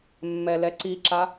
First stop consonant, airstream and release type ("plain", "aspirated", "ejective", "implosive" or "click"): click